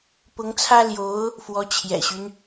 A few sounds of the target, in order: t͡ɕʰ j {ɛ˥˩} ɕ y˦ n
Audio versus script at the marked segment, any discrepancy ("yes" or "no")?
yes